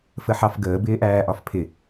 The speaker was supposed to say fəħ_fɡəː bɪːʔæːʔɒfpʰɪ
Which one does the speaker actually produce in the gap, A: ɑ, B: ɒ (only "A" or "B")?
A